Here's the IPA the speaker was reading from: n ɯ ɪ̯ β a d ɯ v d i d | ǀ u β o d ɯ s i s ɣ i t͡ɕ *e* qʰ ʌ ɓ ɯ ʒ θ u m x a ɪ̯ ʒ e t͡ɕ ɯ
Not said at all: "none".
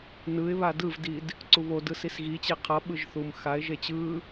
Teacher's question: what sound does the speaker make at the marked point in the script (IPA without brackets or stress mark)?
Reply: e